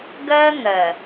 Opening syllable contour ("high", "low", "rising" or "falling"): high